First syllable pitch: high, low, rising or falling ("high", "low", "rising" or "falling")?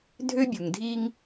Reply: high